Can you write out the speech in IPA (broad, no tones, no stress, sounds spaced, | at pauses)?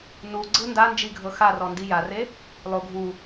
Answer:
n u ɡ͡ǀ ɯ n d a n d͡ʒ i ɡʱ ɤ x a r ɔ n d i j a r e | lˠ o ɡʱ u